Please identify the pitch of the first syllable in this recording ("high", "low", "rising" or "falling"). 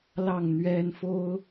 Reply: falling